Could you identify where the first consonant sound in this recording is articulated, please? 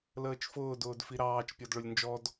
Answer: alveolar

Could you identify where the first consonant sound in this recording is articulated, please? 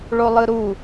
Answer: retroflex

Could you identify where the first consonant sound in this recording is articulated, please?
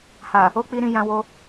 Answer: glottal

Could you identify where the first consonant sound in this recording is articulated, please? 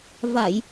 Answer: labial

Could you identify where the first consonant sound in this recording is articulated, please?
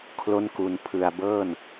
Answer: velar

